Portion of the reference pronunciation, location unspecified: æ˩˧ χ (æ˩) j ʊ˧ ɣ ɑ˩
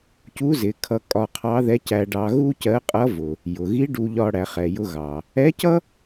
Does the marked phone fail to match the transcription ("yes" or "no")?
yes